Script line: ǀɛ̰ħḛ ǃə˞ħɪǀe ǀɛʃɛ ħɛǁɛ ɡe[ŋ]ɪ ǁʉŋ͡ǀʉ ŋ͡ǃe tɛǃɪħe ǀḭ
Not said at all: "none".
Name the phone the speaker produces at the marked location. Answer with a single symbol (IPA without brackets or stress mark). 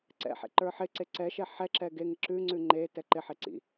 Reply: ŋ